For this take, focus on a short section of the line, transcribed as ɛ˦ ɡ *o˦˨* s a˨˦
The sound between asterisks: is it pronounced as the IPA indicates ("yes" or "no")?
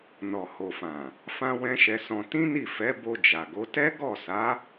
no